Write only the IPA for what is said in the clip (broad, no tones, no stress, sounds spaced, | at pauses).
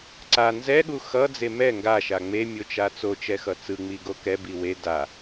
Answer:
ǀ a n z ɛ ɠ u x ʌ d͡z e m ɛ ŋ ɡ a ʃ a ŋ͡m e mʲ o t͡ʃ a t͡s o t͡ʃ ɛ x ʌ t͡s ɯ ŋ͡m i ɡ o k ɛ b i w e d a